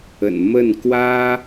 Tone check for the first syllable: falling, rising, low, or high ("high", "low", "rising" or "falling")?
low